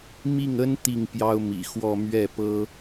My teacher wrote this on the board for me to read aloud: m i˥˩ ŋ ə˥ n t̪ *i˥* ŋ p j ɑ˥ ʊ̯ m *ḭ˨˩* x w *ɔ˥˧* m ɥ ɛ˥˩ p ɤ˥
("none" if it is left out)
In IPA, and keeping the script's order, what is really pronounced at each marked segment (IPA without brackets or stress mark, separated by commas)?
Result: i˥˩, ḭ˨˩, ɔ˥˧